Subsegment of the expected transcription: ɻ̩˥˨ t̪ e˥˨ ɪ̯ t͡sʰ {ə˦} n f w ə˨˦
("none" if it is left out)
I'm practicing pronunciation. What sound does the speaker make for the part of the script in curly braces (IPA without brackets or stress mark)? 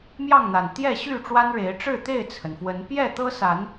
ə˩